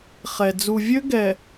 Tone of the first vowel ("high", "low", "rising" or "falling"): low